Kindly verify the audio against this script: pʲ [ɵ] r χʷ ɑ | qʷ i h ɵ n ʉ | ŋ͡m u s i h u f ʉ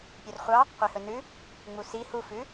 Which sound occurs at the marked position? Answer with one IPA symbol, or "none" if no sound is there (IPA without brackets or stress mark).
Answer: œ